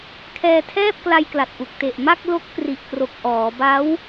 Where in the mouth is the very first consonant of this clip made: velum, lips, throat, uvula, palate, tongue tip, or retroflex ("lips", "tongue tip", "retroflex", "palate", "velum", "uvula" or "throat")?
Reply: velum